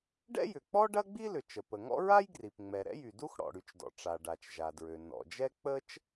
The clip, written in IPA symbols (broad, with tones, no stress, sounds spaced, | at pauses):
ɖ ɛ̰˥ j ʏ˩ k͡p ɔ˥ ɖ ɐ˥ ɡ͡b i˥ l ʏ˩ t͡ʃ ə˩ p ə˩ ŋ ɔ̰˥ ɹ a˥ j ɡ r i˩ p ŋ͡m ɛ˩ ɾ ɛ̰˥ j y˩ d u˥ x ɽ ɔ̰˩ ɽ y˩ t͡ʃ d ɔ̰˩ ʈ͡ʂ a˩ ɖ a˩ t͡ʃ ʒ a˩ d ɹ ø˩ n ɔ̰˩ d͡ʒ ɛ˥ k͡p ə˥ t͡ʃ